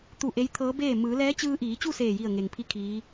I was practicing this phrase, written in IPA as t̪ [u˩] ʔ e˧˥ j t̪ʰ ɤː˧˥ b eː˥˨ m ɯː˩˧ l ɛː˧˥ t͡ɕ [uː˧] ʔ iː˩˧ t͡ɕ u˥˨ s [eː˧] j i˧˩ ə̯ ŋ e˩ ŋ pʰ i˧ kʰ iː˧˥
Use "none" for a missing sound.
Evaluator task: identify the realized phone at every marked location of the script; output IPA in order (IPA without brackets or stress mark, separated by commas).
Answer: u˧˩, ɯː˧, eː˧˩